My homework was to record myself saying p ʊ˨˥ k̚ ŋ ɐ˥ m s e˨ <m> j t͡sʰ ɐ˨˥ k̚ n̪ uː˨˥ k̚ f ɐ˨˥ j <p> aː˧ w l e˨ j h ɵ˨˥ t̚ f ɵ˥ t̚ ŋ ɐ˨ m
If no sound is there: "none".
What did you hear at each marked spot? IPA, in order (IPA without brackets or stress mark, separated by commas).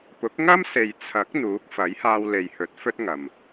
none, h